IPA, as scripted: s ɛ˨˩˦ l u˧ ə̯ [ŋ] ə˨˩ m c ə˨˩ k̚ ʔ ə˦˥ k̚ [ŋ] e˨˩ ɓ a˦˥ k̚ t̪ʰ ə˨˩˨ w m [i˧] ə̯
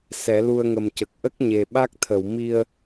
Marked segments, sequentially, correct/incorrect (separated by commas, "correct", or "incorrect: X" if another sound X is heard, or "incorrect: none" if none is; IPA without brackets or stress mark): correct, incorrect: ɲ, correct